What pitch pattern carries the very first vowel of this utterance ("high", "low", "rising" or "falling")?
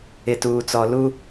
low